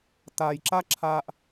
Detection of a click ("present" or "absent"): present